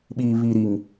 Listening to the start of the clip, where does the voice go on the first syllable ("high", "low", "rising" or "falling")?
low